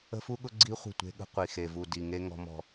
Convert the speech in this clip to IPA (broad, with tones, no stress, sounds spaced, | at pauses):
ə̤˦ f u˦ ɠ ʊ˦ ɡ͡ǀ i˦ χʷ ə̤˦˨ tʷ e̤˦ ɠ ə̤˦ qʷ i˨ x e˨ v u˨ d i˨ ŋ e˦ ŋ ɔ̤˦ m ɔ̤˦